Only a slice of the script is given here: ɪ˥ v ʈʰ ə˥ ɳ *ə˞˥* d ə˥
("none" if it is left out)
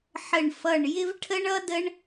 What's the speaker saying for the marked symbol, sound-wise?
ʌ˥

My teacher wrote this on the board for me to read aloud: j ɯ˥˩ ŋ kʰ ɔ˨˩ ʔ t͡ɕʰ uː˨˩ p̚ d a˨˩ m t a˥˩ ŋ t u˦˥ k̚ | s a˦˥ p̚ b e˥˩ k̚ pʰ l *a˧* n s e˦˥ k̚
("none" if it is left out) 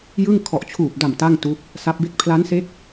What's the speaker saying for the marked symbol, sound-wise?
a˦˥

